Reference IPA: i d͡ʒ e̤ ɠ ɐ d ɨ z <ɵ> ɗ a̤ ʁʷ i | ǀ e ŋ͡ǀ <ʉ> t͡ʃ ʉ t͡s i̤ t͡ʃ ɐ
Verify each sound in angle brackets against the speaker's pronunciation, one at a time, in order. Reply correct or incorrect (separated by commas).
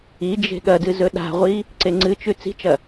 correct, incorrect